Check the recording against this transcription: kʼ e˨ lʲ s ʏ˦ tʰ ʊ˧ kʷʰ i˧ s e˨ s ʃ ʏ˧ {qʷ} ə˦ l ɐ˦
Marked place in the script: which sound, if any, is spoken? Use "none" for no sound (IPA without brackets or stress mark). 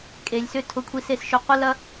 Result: qʷ